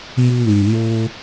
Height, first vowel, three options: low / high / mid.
high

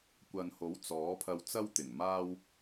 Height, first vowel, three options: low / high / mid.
low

